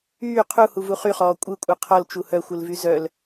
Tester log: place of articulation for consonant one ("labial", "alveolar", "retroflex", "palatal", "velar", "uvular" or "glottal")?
uvular